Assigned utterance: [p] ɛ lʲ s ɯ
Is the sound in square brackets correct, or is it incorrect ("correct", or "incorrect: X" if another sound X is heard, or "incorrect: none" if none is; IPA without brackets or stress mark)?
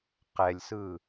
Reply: incorrect: q